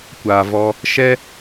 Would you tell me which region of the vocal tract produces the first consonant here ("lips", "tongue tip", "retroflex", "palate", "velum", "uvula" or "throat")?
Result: velum